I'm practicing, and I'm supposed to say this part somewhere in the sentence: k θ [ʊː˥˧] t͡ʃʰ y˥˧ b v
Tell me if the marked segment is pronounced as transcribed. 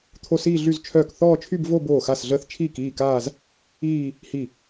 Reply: no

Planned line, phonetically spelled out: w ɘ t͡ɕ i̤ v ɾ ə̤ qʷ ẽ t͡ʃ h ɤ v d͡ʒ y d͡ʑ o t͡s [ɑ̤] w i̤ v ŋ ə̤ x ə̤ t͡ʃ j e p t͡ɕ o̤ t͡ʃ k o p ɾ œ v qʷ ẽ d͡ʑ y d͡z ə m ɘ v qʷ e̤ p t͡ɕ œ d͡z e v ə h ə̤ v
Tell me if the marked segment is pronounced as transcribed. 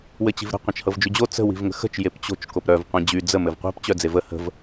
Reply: no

